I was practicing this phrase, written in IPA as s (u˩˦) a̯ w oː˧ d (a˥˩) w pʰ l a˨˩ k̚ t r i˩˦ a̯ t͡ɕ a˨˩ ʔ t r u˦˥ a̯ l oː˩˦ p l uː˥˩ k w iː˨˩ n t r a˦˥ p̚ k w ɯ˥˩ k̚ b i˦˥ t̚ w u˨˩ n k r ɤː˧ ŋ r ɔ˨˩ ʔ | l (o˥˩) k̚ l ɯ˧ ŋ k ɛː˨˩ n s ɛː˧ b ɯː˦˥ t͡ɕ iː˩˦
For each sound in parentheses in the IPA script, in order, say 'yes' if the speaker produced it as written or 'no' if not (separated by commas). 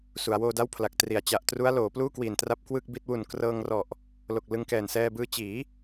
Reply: yes, yes, no